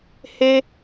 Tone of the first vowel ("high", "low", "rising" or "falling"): high